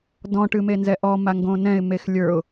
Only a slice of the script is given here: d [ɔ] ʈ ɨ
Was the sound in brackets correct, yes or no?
no